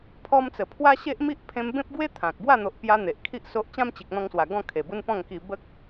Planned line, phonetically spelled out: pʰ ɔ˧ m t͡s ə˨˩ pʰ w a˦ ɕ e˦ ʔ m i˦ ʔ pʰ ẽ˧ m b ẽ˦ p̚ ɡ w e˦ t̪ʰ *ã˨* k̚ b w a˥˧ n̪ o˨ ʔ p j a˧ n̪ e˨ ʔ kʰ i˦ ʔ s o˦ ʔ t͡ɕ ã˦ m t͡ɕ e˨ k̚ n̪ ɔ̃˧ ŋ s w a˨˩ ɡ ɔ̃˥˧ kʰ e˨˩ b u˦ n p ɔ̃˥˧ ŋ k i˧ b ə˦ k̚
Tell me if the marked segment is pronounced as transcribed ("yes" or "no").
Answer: yes